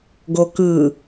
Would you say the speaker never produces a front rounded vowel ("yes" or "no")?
yes